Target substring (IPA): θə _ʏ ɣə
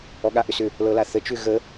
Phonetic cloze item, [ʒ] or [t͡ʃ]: t͡ʃ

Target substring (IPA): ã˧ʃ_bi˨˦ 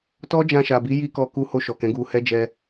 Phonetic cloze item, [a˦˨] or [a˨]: a˨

